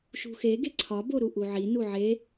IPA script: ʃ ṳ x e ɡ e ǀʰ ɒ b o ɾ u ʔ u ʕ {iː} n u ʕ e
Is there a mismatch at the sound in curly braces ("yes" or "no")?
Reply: yes